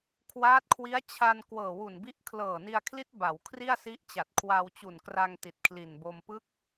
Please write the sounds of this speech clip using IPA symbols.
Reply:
kʰ w aː˦˥ t̚ kʰ w i˦˥ a̯ t͡ɕʰ a˧ n k w ɤː˨˩ w u˨˩ n b i˦˥ ʔ kʰ l ɤː˨˩ n i˧ a̯ kʰ l i˦˥ t̚ b a˩˦ w kʰ r i˥˩ a̯ s i˦˥ ʔ t͡ɕ a˨˩ t̚ kʰ w a˧ w t͡ɕ u˨˩ n k r a˧ ŋ t i˨˩ t̚ kʰ l i˨˩ n b o˧ m p ɯ˦˥ k̚

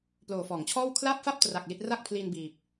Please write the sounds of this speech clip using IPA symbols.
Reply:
p l oː˨˩ f ɔː˩˦ ŋ t͡ɕʰ ɔː˥˩ w kʰ l aː˥˩ p̚ f a˥˩ p̚ t r a˨˩ k̚ l i˦˥ t̚ r a˥˩ k̚ pʰ l i˧ n b iː˨˩ p̚

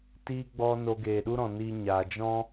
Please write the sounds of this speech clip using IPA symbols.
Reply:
t iː˧ ɡ͡b ɔ˧ n o˧ ɡ eː˨ ɗ u˦ ɾ ɔ̃˨ n iː˧ ɲ aː˨ d͡ʒ ɔ̃˦

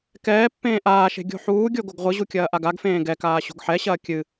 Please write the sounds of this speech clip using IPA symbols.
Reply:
k ɛː pː ẽː ʔ aː ʃ e̤ ɡʲ o̤ ħ uː ɡʲ o ɡ o ɡ ʁʷ ɨ ʑ u kʲ ɐː ʔ a ɡ a ɡ f ẽː ɡ ɛ k aː ɕ o̤ ɡ ħ ɛ ɕ ɐː kʲ ɨ

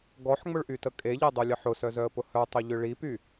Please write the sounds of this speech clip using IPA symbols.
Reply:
ɡ ɔ ħ ŋ͡m ʊ ɭ ʔ y t ə kʼ e ʎ e dˤ œ lʲ ə ħ ʊ s œ z œ ə̯ p ʊ h œ tˤ ʊ ʎ ʏ ɭ i p y

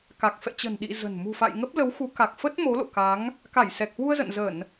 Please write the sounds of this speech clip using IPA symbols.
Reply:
k a˨˩ k̚ f ɛ̰˧˨ t͡ɕ ə̤˨˩ n ɗ ḭ˧˨ z ə̤˨˩ n m ṳ˨˩ f a̰˧˨ j ŋ ə˦˥ p̚ l ə˨˦ w x u˨˦ k a˨˩ k̚ f ə˦˥ t̚ m o˨˦ l o̰˧˨ k a˨˦ ŋ | k a˧˩ j s ɛ˨˩ k̚ h w u˧ ə̯ z ə̰˧˨ n z ə˧˩˨ n

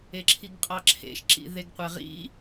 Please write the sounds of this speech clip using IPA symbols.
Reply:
e ǁʰ i ɡ qʼ ɑ ǁʰ ḛ ʃ ǁ ḭ ð e ɡ qʷ ɛ ʁ ḭ

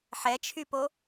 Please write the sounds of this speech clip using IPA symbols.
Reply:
ħ ɛ t͡ʃʰ y p o

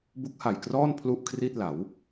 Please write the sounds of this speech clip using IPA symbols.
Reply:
b u˦˥ k̚ h a˨˩ j k r ɔː˥˩ n pʰ l u˥˩ ʔ kʰ r i˥˩ t̚ l a˩˦ w

